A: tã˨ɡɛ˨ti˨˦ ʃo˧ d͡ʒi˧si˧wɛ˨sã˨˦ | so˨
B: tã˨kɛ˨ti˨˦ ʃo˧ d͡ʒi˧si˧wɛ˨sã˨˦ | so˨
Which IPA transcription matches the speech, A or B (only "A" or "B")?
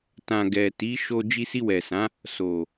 A